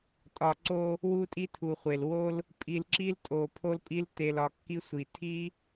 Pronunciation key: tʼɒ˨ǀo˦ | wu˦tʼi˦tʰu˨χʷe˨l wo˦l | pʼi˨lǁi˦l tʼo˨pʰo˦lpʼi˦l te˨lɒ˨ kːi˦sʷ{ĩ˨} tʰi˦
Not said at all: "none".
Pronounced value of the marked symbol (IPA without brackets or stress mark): i˨